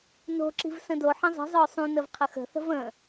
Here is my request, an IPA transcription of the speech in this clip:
n o̤ ǁ i̤ v s ə̃ d o ħ ə̃ zˤ i̤ zˤ œ sˤ ũ n ə v qʰ ə x ə̤ θ ə̤ v ə̃

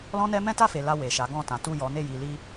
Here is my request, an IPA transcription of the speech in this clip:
l ɔ̃˦ n ɛ˦ m ɛ̃˦ t a˦˨ f e˨ l a˧ w e˨ ʃ a˨˦ ɡ ɔ̃˦˨ t ã˨˦ t u˦˨ j ɔ˨˦ n e˦˨ j i˨ l i˧

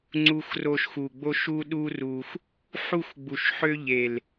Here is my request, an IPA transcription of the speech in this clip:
ŋ͡ǀ u˧ x r o˧ ʃ x u˨ ɡ͡b o˦ ʃ u˦ ɗ u˦ r u˧ x | ħ u˦˨ x ɡ͡b u˨ ʃ ħ ø˦ ʎ e˨ l

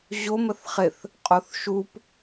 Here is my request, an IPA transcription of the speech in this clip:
ʑ o m ə θ χ ɪ θ | qʼ o θ ʃ u p

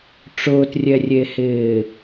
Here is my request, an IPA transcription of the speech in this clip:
ʈ͡ʂ ʊː t rʲ ɛ rʲ e h ɪː

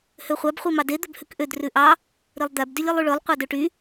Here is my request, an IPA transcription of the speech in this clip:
h ø χʷ æ b χʷ i m ɑ d e d̪ ɵ b h ʉ k ʔ ø d r ʉ ʔ ɑ | ɾ i lˠ d̪ æ b d y lʲ i lˠ y ɭ ø lˠ qʷ ɑ d ø ʈ y

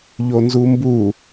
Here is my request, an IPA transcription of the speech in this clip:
ʎ o n z u m b u

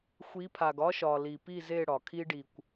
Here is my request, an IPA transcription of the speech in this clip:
xʷ i˨˦ pʰ a˨ ɡ ɒ˦ ʃ ɒ˨ l i˨ p i˦˨ z e˦˨ ɽ ɒ˨ kʰ i˦ ɖ i˨ kʷ

